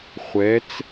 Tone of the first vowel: rising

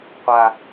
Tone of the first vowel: low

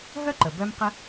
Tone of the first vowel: high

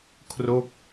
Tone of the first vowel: falling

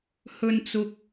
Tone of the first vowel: high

